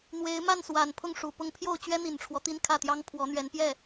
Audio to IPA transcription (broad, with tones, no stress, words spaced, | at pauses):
n̪we˧˥ɪ̯ma˥˩nswa˨˩npʰʊ˥˩ŋ ʂu˨˩pʊ˥˧ŋ pʰjo˥˩ʊ̯t͡ɕɥɛ˥n̪i˨˩nʈ͡ʂʰwɔ˦ t̪i˥˧nkʰä˥˩t̪jɑ˥ŋ pʰwɔ˧˥n̪ɥɛ˧˥npjɛ˥˩